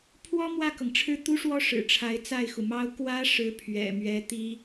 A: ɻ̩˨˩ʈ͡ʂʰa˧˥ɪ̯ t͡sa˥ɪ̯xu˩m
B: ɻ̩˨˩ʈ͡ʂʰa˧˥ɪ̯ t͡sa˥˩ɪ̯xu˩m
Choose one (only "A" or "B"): B